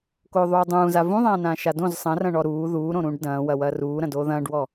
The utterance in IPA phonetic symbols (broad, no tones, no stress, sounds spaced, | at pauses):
k oː ðˤ uː dˤ ũː z a v ũ ðˤ ãː n ãː ʃ a d õ z sˤ ɐ̃ r ɐ̃ ɳ ɔ ɾ uː ð uː ɾ õ ɾ ũː ɖ d ɐ̃ː w ɐ w ɐː r uː ɾ ɐ̃ d oː ð ɐ̃ː ɖ w ɔ